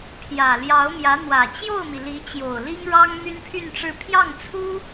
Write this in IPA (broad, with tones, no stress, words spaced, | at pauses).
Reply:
pʰjä˨˩ljɑ˧˥ʊ̯ mjä˧˥n̪wä˨˩ t͡ɕjo˥˩ʊ̯mi˩ li˧˥t͡ɕjo˨˩ʊ̯li˥ŋ ɻɑ˥ŋmy˥npʰy˥˧nʈ͡ʂɻ̩˥˧ pʰjɑ˥˩ŋt͡sʰu˥